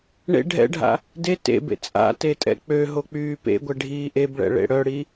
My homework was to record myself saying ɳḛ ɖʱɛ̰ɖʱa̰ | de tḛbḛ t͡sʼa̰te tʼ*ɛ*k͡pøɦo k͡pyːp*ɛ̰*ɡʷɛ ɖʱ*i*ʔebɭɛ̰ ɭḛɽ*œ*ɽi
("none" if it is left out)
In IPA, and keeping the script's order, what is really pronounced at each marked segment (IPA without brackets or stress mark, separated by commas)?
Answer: ɛ̰, ḛ, iː, œ